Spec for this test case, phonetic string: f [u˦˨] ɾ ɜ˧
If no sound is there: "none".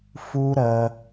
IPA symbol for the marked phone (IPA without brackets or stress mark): u˦